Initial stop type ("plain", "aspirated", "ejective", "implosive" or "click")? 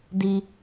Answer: plain